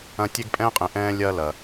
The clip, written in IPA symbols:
ɐ̃˦tʲe˥ɡpʼɛ̃ː˥qʼẽ˨ ʔɛ̃ː˦lʲɐː˦ lɐ˩

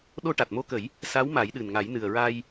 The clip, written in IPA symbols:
ɗo˧ʈa˨˩t̚mo˧kə˨˩˦j | sa˧˥wma˨˩˦jɗɨ˨˩nŋa˨˩˦j nɨ˨˩ə̯ɹa˧j

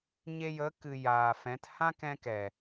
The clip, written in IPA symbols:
ɲe˧jə˨˦kɨ˨ jaː˨fɛ̃˨˦t hã˦kɛ̃˧kɛ˨

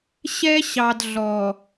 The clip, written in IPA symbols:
ɕɛ˦ ɕɑ˨dɮɔ˨

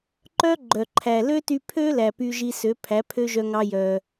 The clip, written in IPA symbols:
ǃœ˥ɡ͡ǃœ˩ ǃʰæ˩lø˥ty˧pʰø˥ læ˩ py˧ʒi˧sø˩˥ pʰæ˩˥pʰø˥ʒœ˧ ŋɑ˧ jœ˩

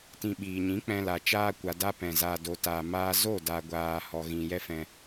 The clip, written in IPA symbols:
tĩ˧ ɓiː˨ɲĩ˨˦ k͡pɛ̃˧la˨ t͡ʃaː˧kʷa˨ da˦pɛ̃˨ zaː˨do˨taː˨maː˧ zo˦˨ da˨ɡʷaː˨hɔ˨ ɣĩ˨jɛ˦ fɛ̃˧

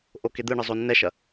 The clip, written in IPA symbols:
ʔoked̪ɯɳɯ zˤonːɛʃɐ

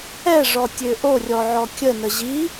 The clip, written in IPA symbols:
ɛʐɔtʲø ʔorʲɔʕɔ kʲənə ʑi

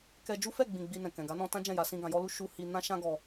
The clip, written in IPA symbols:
kɛ˧d͡ʒu˦ fɛ˦˨ɡ͡bĩ˨ ɡ͡bi˧nɛ̃˨ kɛ̃˨ɡa˨˦nɔ̃˧ tã˦d͡ʒɛ̃˦˨ja˧sĩ˧ ɡã˨jɔ˧lu˧ ʃu˧ hi˧nã˦ʃã˦ ɡɔ˦

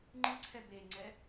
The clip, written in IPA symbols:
ŋ͡ǃɯǀʰɛ beŋ͡ǀɛ

